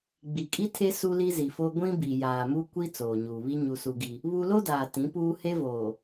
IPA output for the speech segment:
ɡ͡bi˨kʼi˦tʰe˦ su˦li˦zi˨fo˦ ɡʷĩ˦bi˨ jaː˨mu˦ kʷi˦ t͡soː˨ɲuː˨βi˦ ɲu˦su˦ɡi˦ | βu˦ lo˦daː˨ tĩ˨˦puː˦ he˦voː˨

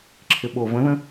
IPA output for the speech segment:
ǁʰɪɓovə̃ðə̃

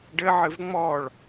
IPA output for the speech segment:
ɖɘʕɨv ŋ͡mɔɭ

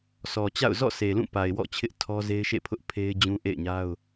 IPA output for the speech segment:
sʰɔ˨t͡ɕa̰˦˨ʊ̯ zɔ̰˦˨sʰe˨lũ˦˨ pa˨ɪ̯wɔ̰˦˨t͡ɕʰɪ˦ʔ tʰɔ˦ze˦ɪ̯ʃḛ˦˨pʰʊ˦ʔ pʰe˦ɪ̯d͡ʑũ˦ ʔḛ˦˨ɪ̯ɲa˦ʊ̯

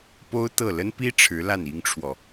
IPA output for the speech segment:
po˥ʊ̯t̪ɤ˥˩ lə˥npi˥ ʈ͡ʂʰɻ̩˧˥la˥˩n i˥ŋʈ͡ʂʰwɔ˨

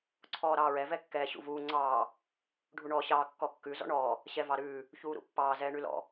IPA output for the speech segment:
ǀʰɔːɾɑːɹɛ vɛkːɛːɕṵvuː ŋ͡ǀɑː | ɖʱuɳɔːɕɑː kːɔkːʉ zɔ̰ɳɔː | ɕɛvɑɾʉː | çuːɾṵpːɑː zɛːɳʉlɔ̰

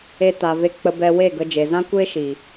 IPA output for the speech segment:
e˧ta˨ve˧ k͡pə˧bɛ˧we˦˨ɡə˧ d͡ʒe˨zã˦kʷeː˦ʃiː˨

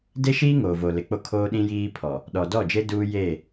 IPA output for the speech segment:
de˦ʃiː˦ ŋoː˨vo˨lɪ˨k͡po˦ kʰoː˦ɗĩ˦jiː˦ pʰɔ˨ | ɗɔ˨dɔ˦˨d͡ʒe˦ duː˦jeː˦˨

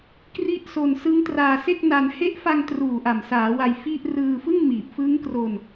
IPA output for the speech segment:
kri˥˩ʔso˧n sɯ˦˥ŋtraː˧se˥˩k̚ na˧n he˦˥ʔfa˧ŋtruː˨˩ ʔa˨˩msaː˩˦ wa˧jfi˥˩ʔ rɯː˧ fɯ˥˩ŋmiː˨˩p̚fɯ˦˥ŋkro˧n

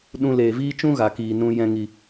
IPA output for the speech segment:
ɗũ˧ leː˨viː˦t͡ʃũ˦ ɣa˨kiː˨ nũ˧ jɛ̃˧ŋi˨

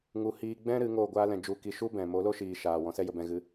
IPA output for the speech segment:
ŋu˧ hiː˧ ɡ͡bɛ̃˦ ɾɨ˨˦ŋoː˦˨ɡʷaː˦lɛ̃˧ d͡ʒu˧ki˧ ʃu˦bɛ̃˨ mo˨˦lo˦ʃiː˨ ʃaː˨wɔ̃˧ sɛ˦jə˧bɛ̃˧ɣɨ˧

